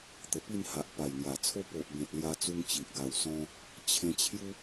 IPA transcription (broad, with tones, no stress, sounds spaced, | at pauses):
t̪ ə˨˩ p i˥˧ n h a˨ ʔ p a˨˩ j ŋ j a˨˩ t͡sʰ o˦ p o˨ ʔ b ẽ˨ t̚ l j a˧ t͡s u˧ ŋ t͡ɕ i˨ ʔ ɡ a˨˩ w s ɔ̃˧ | t͡ɕʰ ẽ˧ t͡ɕʰ j u˦